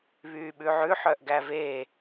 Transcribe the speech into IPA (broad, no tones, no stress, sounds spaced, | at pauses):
β yː ɓ ʉ ʕ ʉ ħ œ ʔ ɡ æ v e